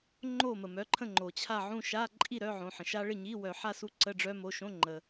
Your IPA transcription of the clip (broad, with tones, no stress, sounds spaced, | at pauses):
ŋ͡ǃ o˥˨ m ə˩ m œ˩˧˩ ǃʰ ə̃˥˨ ŋ͡ǃ o˩ t͡ɕʰ a˥˨ ʕ ũ˥˨ ʃ a˧˥˧ ǃʼ i˥˨ ɾ œ˧˥˧ ʕ õ˩˧˩ ħ ə̃˩ ʃ a˦˥ ɭ ɪ˥˨ ɲ i˧˥˧ w œ˧˩˧ ħ a˥˨ s u˦˥ ǀ ə˧˥˧ ɖ͡ʐ œ˦˥ m o˩˧˩ ʃ õ˧˥˧ ŋ͡ǃ ə˩